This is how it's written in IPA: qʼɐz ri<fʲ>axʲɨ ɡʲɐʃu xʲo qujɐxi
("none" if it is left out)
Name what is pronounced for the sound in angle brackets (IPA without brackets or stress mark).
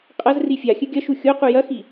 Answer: fʲ